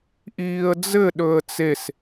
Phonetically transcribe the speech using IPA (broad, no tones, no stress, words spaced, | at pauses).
ʔiːə̯d͡zɘ ɗɵə̯t͡ses